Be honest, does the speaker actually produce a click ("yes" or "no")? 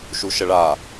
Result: no